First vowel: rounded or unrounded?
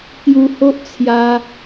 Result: rounded